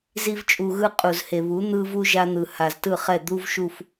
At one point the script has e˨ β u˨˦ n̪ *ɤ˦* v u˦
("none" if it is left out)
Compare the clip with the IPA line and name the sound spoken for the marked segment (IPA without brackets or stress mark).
ɯ˦